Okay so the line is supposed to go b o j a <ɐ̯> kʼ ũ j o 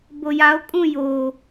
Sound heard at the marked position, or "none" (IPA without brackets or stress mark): o̯